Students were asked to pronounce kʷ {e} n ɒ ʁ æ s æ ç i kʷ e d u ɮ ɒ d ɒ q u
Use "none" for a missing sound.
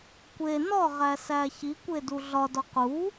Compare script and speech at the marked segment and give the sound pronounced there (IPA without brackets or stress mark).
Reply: e